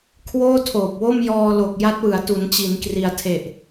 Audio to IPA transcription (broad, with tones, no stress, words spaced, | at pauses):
kʰwoː˥˩tʰoː˨˩p̚wo˥˩m jɔː˧lo˨˩k̚ ja˦˥t̚wɯ˩˦a̯tu˩˦nt͡ɕi˩˦n kri˩˦a̯tʰe˨˩ʔ